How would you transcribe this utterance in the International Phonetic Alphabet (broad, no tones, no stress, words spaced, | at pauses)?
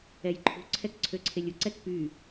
ɛjǃʰṳ ǀʰɛkǀʰøǀʰelʲu ǀɛkpy